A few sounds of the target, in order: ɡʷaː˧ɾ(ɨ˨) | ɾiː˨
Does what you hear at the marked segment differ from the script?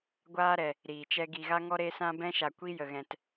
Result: yes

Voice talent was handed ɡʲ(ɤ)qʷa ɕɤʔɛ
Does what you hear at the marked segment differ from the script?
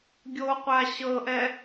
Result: yes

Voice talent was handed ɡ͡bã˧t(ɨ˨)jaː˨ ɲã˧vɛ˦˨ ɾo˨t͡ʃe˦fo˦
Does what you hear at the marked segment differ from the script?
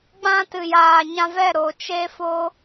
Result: no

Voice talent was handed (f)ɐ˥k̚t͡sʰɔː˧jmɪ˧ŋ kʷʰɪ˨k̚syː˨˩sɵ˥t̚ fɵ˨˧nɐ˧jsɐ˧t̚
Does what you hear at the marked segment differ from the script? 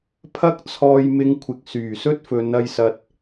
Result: yes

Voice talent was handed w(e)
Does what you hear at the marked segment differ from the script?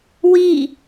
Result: yes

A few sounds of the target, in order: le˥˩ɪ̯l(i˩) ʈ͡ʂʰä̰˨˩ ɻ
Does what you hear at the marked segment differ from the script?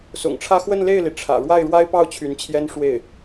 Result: no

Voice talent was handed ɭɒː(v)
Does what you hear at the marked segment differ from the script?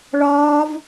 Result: no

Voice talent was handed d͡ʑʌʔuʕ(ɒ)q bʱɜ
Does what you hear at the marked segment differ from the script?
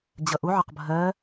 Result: no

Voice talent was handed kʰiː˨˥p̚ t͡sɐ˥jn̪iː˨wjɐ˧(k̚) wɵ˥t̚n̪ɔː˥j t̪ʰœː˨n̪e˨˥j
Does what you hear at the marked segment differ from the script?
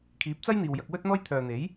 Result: no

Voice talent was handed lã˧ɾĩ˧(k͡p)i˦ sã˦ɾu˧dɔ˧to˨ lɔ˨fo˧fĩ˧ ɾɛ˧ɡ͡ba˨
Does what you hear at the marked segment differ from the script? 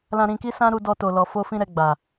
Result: yes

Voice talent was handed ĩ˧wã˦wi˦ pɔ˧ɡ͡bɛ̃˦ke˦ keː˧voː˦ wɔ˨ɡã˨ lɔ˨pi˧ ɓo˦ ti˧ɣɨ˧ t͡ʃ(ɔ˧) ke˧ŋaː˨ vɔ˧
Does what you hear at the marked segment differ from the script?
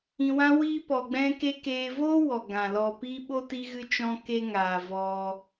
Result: yes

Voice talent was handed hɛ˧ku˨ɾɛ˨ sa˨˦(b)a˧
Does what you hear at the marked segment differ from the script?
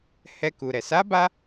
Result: no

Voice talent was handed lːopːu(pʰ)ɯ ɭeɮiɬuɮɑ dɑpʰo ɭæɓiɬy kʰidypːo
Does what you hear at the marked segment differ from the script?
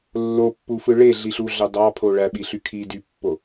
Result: yes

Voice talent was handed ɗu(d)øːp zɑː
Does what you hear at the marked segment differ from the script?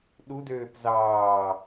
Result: no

